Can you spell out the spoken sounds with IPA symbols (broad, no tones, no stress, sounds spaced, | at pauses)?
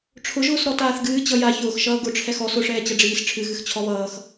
ʈ͡ʂʰ ʊ ʒ ʊː s ɾ ɔ t aː θ ɡ ɨː t͡ɕ ʌ j a ç ʊː x ʃ ʌː ɡ ʊ ʈ͡ʂʰ ɛ x ɔ s ʊ ʂ ɛː t͡ɕ ʌ ɖ͡ʐ iː s ʈ͡ʂʰ ɨ ɣ ɨ x t͡ɕʰ ɔ β ʌː x